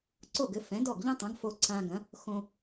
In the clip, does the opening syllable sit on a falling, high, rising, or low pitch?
falling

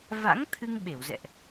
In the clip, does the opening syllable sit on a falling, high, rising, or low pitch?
rising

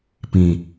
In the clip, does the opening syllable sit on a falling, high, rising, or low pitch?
low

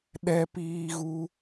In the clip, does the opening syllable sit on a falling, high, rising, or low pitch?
high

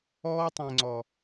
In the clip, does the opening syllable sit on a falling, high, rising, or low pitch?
high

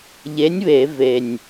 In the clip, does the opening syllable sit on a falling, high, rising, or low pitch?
rising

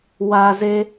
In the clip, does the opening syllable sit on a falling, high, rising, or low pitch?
low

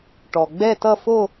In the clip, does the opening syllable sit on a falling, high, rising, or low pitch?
low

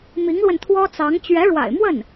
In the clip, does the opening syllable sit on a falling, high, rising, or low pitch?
rising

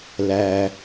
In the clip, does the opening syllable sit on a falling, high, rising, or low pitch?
low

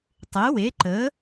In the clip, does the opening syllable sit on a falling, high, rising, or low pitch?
rising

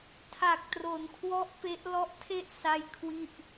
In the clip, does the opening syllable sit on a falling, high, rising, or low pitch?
low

